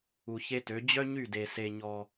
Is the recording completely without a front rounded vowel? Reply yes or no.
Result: no